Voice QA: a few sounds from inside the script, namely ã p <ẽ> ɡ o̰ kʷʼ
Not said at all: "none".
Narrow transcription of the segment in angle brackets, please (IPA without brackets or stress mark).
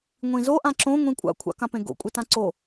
ẽ